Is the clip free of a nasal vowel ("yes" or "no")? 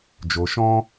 no